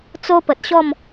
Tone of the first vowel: high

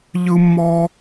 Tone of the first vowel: high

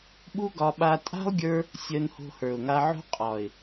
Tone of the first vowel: high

